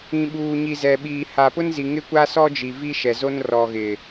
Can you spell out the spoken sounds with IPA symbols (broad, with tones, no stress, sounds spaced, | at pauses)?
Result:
ĩ˨ ɓ uː˨ ɲ i˨ z ɛ˨ ɓ iː˨ h a˨ p ʊ˦ n z i˨ ŋ ɪ˦ kʷ a˦ s ɔ˦ d͡ʒ i˨ v i˦ ʃ ɛ˨ z o˦ n r ɔ˨ ɣ ɪ˨